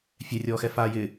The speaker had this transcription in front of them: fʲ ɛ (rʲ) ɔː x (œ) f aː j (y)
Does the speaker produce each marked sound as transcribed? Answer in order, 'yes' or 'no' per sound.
yes, no, no

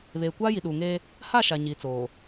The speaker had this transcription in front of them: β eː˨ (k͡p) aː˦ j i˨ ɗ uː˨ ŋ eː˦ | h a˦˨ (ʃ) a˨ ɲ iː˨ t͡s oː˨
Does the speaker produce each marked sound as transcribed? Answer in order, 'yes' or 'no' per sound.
no, yes

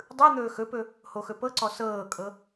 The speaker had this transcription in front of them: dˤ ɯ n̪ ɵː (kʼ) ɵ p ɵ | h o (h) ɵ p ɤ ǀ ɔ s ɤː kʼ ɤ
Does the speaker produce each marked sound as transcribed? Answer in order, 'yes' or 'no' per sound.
no, no

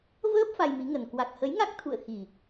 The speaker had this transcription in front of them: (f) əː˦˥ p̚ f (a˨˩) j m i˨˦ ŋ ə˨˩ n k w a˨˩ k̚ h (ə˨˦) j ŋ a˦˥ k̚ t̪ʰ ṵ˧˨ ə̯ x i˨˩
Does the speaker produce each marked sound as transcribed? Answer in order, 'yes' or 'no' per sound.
no, no, yes

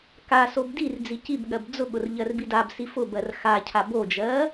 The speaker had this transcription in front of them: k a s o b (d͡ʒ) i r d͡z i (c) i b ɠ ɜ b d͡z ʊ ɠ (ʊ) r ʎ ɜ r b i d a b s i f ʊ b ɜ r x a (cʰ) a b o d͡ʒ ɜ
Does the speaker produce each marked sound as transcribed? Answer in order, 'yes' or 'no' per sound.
no, yes, yes, yes

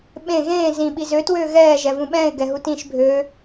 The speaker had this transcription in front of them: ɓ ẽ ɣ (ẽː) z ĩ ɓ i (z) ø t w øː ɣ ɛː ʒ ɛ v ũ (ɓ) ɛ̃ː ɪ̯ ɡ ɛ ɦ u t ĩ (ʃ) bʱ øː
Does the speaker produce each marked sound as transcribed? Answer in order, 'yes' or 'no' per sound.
yes, yes, yes, yes

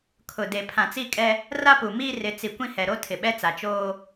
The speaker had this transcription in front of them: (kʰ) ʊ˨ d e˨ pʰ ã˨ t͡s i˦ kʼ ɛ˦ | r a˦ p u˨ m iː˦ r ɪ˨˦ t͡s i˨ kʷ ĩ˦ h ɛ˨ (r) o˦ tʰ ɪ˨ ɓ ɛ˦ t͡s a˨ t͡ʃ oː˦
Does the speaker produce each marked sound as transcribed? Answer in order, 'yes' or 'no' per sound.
yes, no

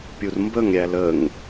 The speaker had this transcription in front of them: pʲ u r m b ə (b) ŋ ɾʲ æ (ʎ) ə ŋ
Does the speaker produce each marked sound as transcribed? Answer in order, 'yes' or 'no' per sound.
no, no

